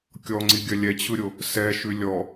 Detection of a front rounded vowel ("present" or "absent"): absent